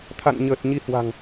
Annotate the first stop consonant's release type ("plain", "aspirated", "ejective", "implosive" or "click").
aspirated